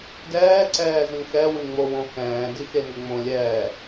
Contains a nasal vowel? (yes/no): yes